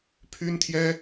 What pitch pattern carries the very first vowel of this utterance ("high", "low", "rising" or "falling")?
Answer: high